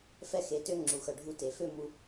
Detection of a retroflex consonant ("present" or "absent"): present